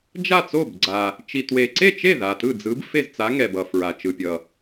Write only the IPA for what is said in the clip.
d͡ʒa˥˩t͡so˥˩bɡ͡ǀa˨ | t͡ʃi˨twe˨ǀe˥˩t͡ʃe˥˩ ða˨tɯ˥˩d͡zɯ˧˥b fe˥˩zt͡sa˧˥ŋɛ˨ bʌ˨fɹa˨ t͡ʃɯ˨pʲʌ˨

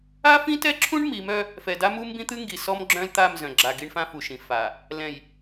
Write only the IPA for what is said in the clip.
a˦fĩ˦tɛ˦ǁʰũ˦ɳ mi˨˦mœ˦ | fɛ˨da˦ mu˦mbĩ˦t̪ɨ˦ŋɡi˨ sɔ˦m ɡ͡ǁœ̃˦lt̪a˦˨m zœ̃˨ ɡ͡ǁa˨ ɡi˦ɳfã˦fu˨ʃĩ˨ fa˨ | lɛ̃˨j

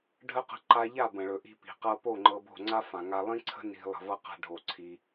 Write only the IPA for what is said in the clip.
ɖʱə˦ qə̤˧ǃa˧ ʎa˦˨bə̃˨ɭɵ˨ ʔi̤˧ pi̤˨qɤ˧ po˦˨ŋ͡ǃɤ˧bo̤˦˨ ŋ͡ǀa˦fã˨ŋa˧ lˠĩ˦ǀʰə̤˦ ni̤˧ lˠə̤˧vɤ˦ qa̤˦ɖʱo˦˨ǀʰi˦

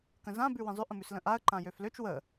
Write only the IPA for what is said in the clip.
kə̃zã bʉwĩzˤøʔ ə̃mʉslə̃ʔaə̯ ǃãjøfløt͡ʃ wə

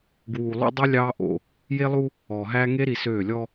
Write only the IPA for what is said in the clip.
ɡwuː˨lˠṵ˦dˤi˦ lʲɑː˦ ʔo̰˨ | je˦lˠu˦ | ɔː˨ɦæː˦ ŋe˦ɾi˨ søː˦˨ lʲɔ˦

